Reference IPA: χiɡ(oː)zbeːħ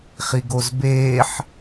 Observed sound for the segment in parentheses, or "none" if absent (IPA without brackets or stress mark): o